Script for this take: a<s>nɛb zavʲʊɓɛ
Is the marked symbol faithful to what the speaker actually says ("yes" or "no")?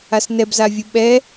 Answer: yes